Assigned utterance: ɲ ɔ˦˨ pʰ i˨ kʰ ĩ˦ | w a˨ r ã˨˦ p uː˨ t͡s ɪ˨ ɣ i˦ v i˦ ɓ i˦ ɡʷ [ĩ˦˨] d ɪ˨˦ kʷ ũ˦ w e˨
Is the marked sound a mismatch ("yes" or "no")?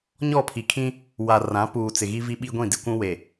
no